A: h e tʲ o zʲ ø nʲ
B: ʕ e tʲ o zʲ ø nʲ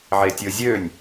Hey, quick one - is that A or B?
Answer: B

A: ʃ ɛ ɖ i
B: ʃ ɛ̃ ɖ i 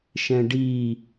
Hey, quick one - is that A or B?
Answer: B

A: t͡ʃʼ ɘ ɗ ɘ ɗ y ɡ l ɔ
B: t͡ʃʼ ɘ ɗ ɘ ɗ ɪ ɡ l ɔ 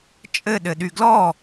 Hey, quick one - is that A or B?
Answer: A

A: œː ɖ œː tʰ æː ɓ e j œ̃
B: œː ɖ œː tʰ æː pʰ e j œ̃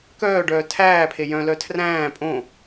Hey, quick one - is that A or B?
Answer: B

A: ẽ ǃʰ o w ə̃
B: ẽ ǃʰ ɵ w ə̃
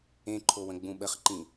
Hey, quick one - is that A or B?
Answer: A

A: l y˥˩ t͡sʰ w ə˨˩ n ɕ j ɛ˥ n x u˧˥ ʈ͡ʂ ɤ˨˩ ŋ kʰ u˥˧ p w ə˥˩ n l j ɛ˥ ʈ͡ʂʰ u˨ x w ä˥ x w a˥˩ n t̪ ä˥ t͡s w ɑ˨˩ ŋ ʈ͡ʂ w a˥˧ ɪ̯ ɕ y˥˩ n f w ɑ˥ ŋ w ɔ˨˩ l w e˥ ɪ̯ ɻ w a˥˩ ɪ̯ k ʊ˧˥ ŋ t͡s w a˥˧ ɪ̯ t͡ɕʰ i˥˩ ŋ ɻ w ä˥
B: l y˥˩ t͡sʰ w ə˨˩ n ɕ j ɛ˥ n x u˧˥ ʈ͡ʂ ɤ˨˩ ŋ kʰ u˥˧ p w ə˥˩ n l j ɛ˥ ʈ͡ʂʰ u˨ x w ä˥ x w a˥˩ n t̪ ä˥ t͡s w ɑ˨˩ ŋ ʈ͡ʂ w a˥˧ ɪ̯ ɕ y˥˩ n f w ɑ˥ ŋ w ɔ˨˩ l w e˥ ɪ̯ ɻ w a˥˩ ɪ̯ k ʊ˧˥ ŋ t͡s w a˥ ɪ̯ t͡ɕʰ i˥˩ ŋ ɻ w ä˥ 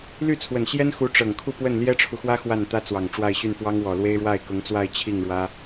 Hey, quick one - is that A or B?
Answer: A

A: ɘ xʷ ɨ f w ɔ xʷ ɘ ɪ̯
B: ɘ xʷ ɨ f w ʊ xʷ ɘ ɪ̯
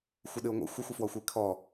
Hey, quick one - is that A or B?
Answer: A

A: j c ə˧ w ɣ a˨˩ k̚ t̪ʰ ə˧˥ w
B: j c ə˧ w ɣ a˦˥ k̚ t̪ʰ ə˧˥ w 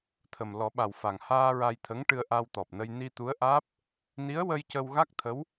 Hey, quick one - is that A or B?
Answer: B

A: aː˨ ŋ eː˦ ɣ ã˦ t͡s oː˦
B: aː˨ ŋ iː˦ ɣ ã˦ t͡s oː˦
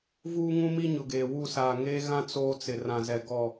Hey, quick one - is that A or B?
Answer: A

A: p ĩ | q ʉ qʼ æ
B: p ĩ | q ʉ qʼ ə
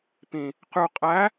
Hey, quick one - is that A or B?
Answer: A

